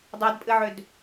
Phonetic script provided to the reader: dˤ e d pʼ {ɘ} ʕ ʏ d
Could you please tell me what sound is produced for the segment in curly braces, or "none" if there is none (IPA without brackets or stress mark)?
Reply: ɘ